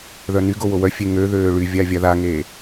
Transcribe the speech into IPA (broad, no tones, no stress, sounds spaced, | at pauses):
ð œ n y ɡ o w o w œ fʲ e ŋ ø ð øː ɭ y vʲ a vʲ a ð a ŋ eː